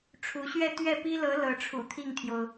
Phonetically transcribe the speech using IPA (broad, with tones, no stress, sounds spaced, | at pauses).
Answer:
ʈ͡ʂʰ u˧˥ ɕ ɥ ɛ˥˧ t̪ ɥ ɛ˥˩ p i˥ l ɤ˧˥ l ɤ˧˥ ʈ͡ʂʰ ṵ˨˩ t̪ʰ i˥˩ ŋ t̪ʰ j o˩ ʊ̯